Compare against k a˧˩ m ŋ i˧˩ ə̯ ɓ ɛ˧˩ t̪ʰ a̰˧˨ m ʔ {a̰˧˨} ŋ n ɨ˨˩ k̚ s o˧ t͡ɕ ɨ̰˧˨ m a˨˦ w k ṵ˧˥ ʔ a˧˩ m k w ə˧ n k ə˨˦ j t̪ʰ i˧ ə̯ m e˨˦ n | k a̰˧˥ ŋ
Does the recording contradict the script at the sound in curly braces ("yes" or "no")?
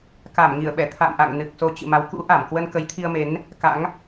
no